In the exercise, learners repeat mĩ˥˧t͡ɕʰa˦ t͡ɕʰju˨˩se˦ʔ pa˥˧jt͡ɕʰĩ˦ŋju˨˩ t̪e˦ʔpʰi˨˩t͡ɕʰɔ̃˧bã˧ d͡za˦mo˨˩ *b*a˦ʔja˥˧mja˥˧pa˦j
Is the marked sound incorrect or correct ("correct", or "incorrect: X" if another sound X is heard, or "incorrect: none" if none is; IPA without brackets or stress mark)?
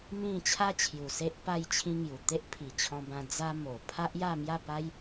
incorrect: pʰ